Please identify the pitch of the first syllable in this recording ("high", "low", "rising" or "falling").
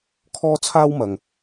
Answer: high